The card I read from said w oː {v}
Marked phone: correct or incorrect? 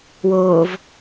correct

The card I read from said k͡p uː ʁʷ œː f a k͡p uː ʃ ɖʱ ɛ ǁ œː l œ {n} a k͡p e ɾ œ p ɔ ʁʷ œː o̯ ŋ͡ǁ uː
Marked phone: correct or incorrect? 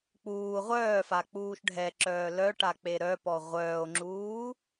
incorrect: ʈ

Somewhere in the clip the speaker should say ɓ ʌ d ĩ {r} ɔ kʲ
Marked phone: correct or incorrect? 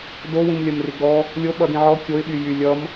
incorrect: ʕ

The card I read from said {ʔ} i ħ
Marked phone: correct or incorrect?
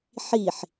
incorrect: ħ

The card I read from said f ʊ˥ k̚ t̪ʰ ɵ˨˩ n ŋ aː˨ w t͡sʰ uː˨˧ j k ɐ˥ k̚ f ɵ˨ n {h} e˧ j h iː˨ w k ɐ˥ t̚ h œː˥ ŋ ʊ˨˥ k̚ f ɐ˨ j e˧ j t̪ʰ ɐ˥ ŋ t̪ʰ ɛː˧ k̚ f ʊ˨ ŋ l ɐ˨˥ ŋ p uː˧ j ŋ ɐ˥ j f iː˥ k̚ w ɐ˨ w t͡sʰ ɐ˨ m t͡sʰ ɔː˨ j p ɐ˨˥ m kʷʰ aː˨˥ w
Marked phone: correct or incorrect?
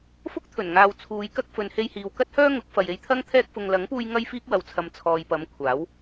correct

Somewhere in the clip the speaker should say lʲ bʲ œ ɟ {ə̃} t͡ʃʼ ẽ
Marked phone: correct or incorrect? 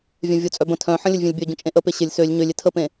correct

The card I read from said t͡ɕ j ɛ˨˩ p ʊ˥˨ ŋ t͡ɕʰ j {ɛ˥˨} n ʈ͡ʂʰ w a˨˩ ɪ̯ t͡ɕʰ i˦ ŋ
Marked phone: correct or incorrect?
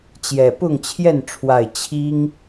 correct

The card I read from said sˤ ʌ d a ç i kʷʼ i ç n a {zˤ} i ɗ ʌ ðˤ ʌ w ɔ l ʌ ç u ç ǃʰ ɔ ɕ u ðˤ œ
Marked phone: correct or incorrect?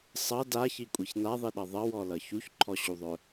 incorrect: ðˤ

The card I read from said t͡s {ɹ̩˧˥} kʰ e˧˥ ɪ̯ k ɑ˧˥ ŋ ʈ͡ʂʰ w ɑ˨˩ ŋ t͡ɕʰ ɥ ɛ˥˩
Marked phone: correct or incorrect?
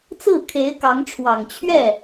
incorrect: ɹ̩˥˩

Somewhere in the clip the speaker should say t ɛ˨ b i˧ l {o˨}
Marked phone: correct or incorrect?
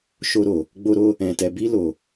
correct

